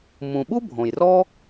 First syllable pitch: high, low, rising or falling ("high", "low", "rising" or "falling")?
low